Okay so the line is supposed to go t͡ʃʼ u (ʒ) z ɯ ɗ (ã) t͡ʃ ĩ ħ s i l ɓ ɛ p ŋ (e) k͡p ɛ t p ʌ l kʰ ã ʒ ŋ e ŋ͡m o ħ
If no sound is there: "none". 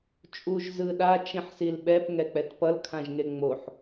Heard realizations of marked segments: ʒ, a, ɛ

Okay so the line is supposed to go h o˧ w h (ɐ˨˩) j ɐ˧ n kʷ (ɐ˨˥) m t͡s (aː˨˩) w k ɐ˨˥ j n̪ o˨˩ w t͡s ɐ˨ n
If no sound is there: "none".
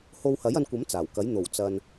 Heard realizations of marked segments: ɐ˨˥, ɐ˨˥, aː˨˩

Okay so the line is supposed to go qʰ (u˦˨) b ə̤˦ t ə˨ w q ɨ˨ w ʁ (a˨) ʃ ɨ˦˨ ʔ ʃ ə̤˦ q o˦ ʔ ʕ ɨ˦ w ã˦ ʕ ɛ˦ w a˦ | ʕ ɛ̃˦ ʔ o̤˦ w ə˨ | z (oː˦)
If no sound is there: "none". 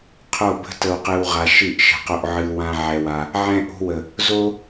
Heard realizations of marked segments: o˦˨, a˨, o˦

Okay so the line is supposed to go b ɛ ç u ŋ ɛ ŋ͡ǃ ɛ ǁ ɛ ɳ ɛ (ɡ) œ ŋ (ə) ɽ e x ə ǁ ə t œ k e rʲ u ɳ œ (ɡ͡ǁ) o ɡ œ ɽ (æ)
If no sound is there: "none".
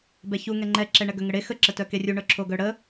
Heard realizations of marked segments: ɡ, ə, ǁʰ, ə

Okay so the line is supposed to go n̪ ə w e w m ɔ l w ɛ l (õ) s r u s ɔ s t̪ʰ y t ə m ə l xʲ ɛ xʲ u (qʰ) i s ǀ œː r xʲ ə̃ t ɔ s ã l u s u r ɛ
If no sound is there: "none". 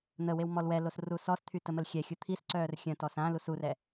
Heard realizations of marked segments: o, t̪ʰ

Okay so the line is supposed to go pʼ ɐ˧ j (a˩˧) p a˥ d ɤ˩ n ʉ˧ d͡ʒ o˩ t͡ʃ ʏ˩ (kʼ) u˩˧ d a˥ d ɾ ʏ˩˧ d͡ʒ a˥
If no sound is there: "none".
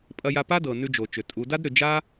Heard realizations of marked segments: a˧, tʼ

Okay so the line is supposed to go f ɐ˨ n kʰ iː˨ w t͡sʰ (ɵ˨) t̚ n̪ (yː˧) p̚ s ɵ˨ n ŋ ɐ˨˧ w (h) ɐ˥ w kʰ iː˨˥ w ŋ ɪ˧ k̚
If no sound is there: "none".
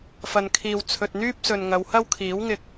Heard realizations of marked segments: ɵ˨, yː˥, h

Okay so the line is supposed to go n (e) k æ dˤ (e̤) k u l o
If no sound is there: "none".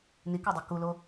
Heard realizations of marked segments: i, e

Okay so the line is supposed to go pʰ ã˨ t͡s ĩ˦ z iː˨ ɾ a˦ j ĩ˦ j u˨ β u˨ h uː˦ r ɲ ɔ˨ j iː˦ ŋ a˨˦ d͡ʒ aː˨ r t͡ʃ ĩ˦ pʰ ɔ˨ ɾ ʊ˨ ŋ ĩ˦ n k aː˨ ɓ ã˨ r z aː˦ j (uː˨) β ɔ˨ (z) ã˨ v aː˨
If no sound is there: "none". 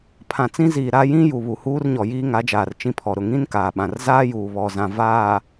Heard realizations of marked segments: uː˨, z

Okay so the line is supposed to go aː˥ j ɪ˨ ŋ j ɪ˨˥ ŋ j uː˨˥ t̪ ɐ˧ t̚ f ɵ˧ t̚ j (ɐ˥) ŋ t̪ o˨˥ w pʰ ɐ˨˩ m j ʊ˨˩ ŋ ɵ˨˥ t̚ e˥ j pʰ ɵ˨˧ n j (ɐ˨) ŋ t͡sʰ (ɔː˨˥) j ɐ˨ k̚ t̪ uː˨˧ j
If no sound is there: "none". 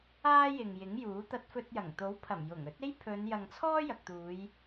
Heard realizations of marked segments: ɐ˨˩, ɐ˨, ɔː˥

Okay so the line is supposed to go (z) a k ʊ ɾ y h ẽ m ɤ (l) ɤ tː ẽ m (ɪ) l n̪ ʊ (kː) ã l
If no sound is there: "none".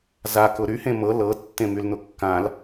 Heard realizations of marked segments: z, l, y, kː

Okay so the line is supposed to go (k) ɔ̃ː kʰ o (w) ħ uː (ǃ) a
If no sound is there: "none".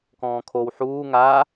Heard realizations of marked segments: k, w, ŋ

